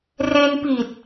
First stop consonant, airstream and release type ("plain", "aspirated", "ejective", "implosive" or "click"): plain